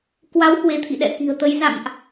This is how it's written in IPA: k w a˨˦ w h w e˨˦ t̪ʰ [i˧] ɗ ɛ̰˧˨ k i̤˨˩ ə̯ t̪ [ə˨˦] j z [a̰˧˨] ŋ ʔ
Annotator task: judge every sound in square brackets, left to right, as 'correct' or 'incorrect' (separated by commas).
incorrect, correct, correct